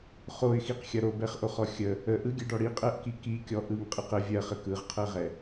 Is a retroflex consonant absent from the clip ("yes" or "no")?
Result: no